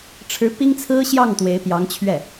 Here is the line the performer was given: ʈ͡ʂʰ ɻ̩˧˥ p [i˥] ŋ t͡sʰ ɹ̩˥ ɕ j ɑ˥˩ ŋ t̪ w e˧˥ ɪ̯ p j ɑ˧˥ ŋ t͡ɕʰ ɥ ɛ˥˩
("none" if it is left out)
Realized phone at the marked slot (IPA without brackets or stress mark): i˥